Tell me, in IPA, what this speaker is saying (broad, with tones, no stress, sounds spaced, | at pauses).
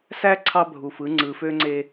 s æ˦ ǀʰ ɑ˦ bʱ u˨ f ɯ˨˦ ŋ͡ǀ ɯ˨ f ø˦ ŋ͡ǀ e˦